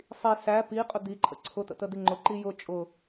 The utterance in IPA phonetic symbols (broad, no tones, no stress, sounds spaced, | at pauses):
sˤ i s æ p i qʼ ʊ d̪ i ǃʰ ə̰ ǀʰ ʊ t̪ ə̰ t̪ ə d̪ i ŋ͡ǃ ʊ ǃ i j ʊ t͡ʃʼ ʊ